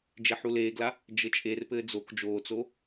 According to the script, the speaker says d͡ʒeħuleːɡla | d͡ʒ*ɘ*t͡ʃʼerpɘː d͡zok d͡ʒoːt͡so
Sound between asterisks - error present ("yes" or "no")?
no